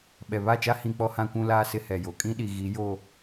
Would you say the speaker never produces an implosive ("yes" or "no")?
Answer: no